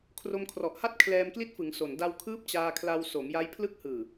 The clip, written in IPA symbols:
kʰ r o˧ m kʰ r ɔ˨˩ ʔ h a˥˩ t̚ kʰ l ɛː˧ m k l i˦˥ t̚ f ɯ˩˦ ŋ s o˨˩ n d a˧ w kʰ ɯː˦˥ p̚ t͡ɕ aː˧ kʰ l a˧ w s o˩˦ m j a˦˥ j pʰ l ɯ˦˥ k̚ h ɯː˨˩

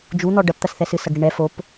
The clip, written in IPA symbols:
d͡ʒ u n̪ ɔ ɖ ɐ p t̪ ɐ s θ ɛ s ɨ s ɐ ɡ ɽ i ɳ ɛ f o p

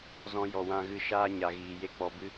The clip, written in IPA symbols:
z ɔ̃˧ j ɔ˨ w ã˧ ɣ ɨ˧ ʃ aː˧ ɲ a˨ ɣ iː˨ j e˦ k͡p ɔ˧ b ɨ˦

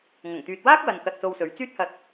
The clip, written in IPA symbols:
ŋ ɐ˨˩ ŋ t̪ yː˨ t̚ w aː˥ k̚ w ɐ˧ n k ɐ˧ t̚ s o˧ w s ɵ˨˧ ɥ t͡s yː˥ t̚ h ɐ˧ t̚

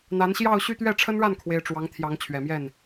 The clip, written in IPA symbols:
n̪ a˧˥ n ɕ j ɑ˥˧ ʊ̯ ɕ y˥˧ t̪ ɥ ɛ˥˩ ʈ͡ʂʰ ə˥ n ɻ a˥˩ n kʰ w e˥ ɪ̯ ʈ͡ʂ w ɑ˧˥ ŋ t̪ʰ j ɑ˧˥ ŋ t͡ɕʰ ɥ ɛ˨˩ m j ɛ˥˩ n

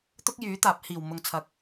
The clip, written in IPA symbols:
t̪ ʊ˥ k̚ j yː˨˥ t̪ aː˨˥ p̚ h iː˨˩ w m ʊ˨ ŋ t͡sʰ ɐ˨˥ k̚

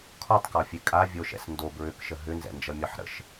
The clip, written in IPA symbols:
kʰ ɒ tˤ k ɒ fʲ e kʼ a vʲ o ʃ ɛ̰ s n d o b ɹ ʏ k ʃ ə ɦ ʏ n z ɛ̰ n d͡ʒ ʌ mʲ ɒ ħ ɾ ə̰ ʃ

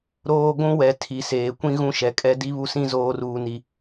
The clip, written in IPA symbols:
ɾ oː˦ ɡʷ ũ˦ w ɛ˨ tʰ i˨ s eː˨ kʷ ĩ˦ ɣ ũ˦ ʃ ɛ˨ kʼ ɛ˦ d i˦ β u˦ s ĩ˦ z oː˦ r uː˦ n i˦

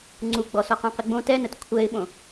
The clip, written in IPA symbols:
ŋ͡ǀ u ɡ͡b ɔ s ɔ q õ q ɪ ɡ͡b õ t ɛ n ə t kʷʰ ɛ ɪ̯ ɓ õ

